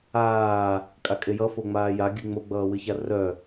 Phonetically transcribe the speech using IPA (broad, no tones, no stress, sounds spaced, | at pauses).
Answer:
aː | kʼ a kʼ e j ʌ f o ŋ͡m aː j a ɡʲ ɨ ŋ͡m o ɡ͡b ʌː w ɨ ç a r œ